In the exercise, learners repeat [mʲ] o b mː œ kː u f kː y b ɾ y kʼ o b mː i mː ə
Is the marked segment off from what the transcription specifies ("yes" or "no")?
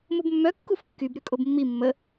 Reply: yes